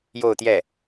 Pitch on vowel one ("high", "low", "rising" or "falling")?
falling